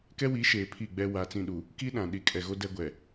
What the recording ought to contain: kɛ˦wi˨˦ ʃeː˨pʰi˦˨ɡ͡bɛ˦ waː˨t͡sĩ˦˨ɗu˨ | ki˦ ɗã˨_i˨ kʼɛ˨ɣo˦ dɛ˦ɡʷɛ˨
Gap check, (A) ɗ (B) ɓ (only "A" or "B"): A